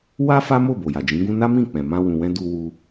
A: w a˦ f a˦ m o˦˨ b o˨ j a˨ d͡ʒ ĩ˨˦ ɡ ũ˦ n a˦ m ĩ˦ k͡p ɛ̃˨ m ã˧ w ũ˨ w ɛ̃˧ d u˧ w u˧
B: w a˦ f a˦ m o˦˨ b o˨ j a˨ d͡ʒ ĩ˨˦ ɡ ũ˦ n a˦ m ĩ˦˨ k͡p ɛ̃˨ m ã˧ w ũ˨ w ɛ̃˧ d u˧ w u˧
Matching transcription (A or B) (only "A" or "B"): B